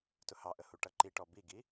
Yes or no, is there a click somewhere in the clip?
yes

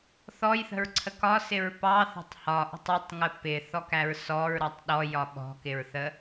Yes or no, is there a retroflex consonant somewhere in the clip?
no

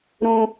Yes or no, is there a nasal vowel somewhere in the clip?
yes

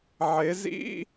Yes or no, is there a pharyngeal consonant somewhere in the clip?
yes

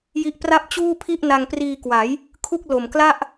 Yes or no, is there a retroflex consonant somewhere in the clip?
no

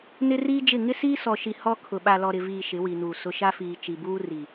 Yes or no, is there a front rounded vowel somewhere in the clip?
no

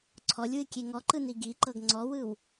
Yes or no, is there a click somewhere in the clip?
yes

